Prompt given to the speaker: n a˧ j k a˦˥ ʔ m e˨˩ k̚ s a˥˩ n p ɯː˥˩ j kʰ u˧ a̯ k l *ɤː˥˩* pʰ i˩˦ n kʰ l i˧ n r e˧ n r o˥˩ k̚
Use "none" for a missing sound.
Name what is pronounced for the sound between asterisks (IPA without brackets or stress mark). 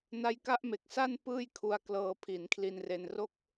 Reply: ɤː˧